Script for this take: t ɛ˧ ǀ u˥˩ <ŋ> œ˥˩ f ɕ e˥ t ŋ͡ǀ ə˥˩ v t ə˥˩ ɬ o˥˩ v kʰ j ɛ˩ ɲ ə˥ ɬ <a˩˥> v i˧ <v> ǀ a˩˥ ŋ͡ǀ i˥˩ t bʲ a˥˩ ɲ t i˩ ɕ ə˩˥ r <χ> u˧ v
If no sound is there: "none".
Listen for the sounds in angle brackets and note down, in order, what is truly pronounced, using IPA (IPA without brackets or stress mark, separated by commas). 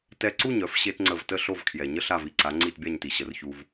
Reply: ɲ, a˥˩, none, ç